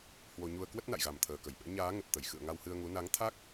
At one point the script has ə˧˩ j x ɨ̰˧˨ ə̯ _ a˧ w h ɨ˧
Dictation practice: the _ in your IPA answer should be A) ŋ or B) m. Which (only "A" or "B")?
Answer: A